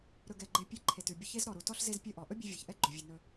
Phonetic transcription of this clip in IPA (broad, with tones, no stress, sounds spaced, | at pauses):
ɾ ɵ˧ ɡ ɛ˧ ɡ͡ǃ e˧ pʲ e˧ ǃʰ e˨ t ʉ˨ bʲ ə˧ ç e˦ z ɾ ɔ˨ ɾ u˨ t ɔ˧ ɬ z e˧ z pʲ ɵ˧ ʔ ɔ˨ ʔ ɵ˦ bʲ ʉ˧ vʲ a˨ ç ʔ ɛ˦ ɡ͡ǃ ɵ˨ vʲ ʉ˨ n ɵ˧